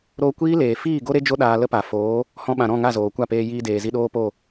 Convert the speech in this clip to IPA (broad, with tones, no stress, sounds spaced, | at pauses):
ɾ oː˧ kʷ iː˦ l eː˨ f iː˦˨ ɡ o˦ ɾ e˦ d͡ʒ o˦ ɗ aː˧ l ə˦ p a˨ f oː˨˦ | h ɔ̃˧ ɓ ã˨ ɾ ɔ̃˦˨ ŋ a˦˨ z oː˨ kʷ a˦˨ p eː˧ j iː˧ d eː˨ z i˧ ɗ oː˦ p o˦˨